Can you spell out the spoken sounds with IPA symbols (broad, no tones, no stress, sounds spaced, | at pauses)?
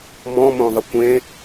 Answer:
m ɔ̃ m õ ðˤ ɪ kʷ ẽ